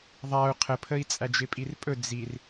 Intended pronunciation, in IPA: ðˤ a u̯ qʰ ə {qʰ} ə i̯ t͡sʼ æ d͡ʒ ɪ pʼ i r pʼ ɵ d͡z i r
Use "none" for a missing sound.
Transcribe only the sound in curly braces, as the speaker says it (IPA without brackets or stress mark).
pʰ